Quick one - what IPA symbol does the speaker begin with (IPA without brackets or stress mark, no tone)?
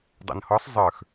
dˤ